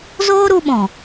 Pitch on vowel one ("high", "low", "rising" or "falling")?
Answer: high